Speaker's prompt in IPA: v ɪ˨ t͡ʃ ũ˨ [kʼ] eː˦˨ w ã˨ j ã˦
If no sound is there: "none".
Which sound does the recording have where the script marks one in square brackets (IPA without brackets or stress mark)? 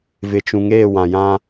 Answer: ŋ